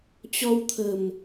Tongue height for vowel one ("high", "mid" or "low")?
mid